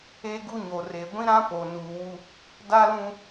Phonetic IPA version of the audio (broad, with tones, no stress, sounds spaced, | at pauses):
e˦ ɡ u˦ ɲ o˨ r e˨ ɡʷ ĩ˦ ɾ ã˦ p o˨ n uː˨ w u˦ | d a˦ l ũ˦